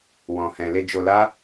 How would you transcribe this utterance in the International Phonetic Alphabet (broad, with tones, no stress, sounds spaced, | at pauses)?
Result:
w ɔ̃˨ h ɛ̃˨ l e˧ d͡ʒ o˧ l a˦